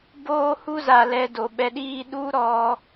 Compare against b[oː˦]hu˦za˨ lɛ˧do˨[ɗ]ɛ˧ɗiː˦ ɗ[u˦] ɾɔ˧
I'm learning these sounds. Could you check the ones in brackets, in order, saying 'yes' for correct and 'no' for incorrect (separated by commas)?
yes, no, yes